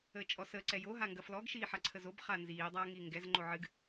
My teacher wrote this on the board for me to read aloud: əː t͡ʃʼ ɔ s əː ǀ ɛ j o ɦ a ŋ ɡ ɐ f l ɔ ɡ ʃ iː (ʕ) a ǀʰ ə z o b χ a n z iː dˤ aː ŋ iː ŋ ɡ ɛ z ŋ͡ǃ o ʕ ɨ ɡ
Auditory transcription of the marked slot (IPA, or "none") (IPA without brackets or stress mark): ħ